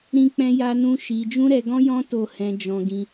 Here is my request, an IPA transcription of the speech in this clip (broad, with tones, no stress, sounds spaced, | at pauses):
ɾ ĩ˦ k͡p ɛ̃˦ j a˦ n ũ˦ ʃ i˧ d͡ʒ ũ˦ ɾ ɛ˧ ɡ ɔ̃˦ j ɔ̃˦ t o˦˨ h ɛ̃˧ d͡ʒ ɔ̃˧ ɡ ĩ˧